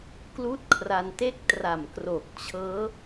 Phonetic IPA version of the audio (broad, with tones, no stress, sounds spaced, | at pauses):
k l uː˥˩ t̚ kʰ r a˧ n t e˥˩ k̚ t r a˨˩ m k r o˨˩ k̚ t͡ɕʰ ɤː˦˥